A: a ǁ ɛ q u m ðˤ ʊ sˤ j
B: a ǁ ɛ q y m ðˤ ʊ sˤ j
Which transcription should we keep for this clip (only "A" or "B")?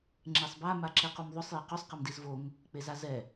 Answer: A